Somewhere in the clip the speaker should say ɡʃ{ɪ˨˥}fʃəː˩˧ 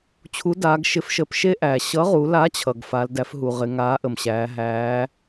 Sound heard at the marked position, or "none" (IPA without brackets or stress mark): ɪ˨˥